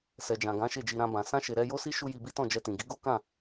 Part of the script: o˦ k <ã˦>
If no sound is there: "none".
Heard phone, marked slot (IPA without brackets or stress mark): ã˦˨